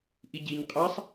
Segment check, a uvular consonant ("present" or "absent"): present